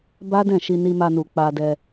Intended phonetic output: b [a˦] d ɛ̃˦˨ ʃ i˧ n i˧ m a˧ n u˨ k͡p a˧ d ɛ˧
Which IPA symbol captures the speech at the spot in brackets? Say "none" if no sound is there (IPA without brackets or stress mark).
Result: a˦